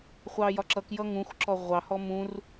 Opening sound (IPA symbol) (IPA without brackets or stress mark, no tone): χʷ